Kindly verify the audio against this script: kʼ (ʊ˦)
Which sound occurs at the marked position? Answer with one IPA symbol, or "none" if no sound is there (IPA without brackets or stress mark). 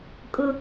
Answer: ʊ˦